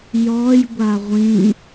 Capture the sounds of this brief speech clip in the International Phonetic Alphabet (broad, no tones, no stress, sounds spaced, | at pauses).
j ɔ j ɡʷ a ʁʷ ĩ